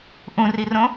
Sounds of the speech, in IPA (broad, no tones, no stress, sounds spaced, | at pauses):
ʔ ũ r i r õ